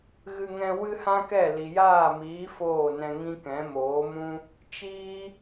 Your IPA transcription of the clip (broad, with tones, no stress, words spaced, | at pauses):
ɣɨ˧ŋɛ̃˧ wɨ˦hã˦kɛ˦˨ li˨jaː˦˨miː˨˦ foː˦˨nɛ̃˧ŋĩ˦kɛ̃˨˦ moː˨˦mũ˦ | t͡ʃiː˦